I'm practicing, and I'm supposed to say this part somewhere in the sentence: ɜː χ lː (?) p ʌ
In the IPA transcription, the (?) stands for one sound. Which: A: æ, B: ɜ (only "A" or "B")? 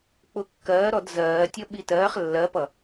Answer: B